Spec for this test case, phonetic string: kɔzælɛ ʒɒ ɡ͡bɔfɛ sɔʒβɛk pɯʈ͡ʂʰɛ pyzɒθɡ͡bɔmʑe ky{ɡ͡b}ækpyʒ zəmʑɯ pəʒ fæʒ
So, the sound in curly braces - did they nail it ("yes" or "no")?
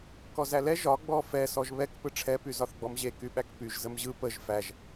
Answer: no